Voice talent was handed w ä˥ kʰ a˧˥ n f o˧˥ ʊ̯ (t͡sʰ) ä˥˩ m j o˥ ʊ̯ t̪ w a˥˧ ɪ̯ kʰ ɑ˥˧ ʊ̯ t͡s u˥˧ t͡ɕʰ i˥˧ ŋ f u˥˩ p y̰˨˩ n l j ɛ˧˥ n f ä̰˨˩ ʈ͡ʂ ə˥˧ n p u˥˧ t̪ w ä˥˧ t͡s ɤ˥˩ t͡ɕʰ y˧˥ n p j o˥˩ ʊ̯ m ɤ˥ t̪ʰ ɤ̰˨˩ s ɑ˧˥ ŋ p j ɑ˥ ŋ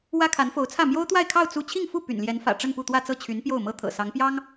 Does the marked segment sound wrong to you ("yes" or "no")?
no